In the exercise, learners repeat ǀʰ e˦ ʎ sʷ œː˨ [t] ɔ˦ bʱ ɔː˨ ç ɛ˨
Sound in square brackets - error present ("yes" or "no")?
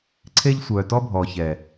no